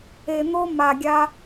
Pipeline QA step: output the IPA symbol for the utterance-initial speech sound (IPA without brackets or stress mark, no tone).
e